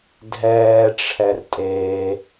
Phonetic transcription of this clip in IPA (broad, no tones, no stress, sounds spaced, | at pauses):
dʱ ɛː ʈ͡ʂʰ ɛ r tʼ eː